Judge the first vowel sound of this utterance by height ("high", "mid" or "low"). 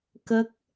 mid